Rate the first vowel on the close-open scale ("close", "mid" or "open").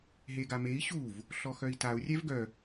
mid